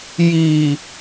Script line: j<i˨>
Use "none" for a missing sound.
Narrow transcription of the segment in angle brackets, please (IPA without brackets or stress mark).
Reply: i˨